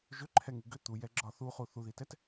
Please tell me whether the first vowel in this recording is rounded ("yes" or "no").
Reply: yes